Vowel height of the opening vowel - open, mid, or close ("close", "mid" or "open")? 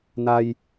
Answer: open